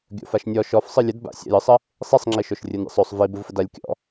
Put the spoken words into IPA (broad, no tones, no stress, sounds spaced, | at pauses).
ɡʲ o̰ f a ʃ nʲ ɔ ʃ ɔ f sˤ ɯ lʲ ə d b a̰ sʲ a̰ j ɯ sˤ ə | sˤ i sˤ ŋ͡ǁ i ʃ o ʃ rʲ ɯ n ɾʲ a̰ sˤ o sˤ v i b ɯ v f ə d a lʲ kʲ ɔ̰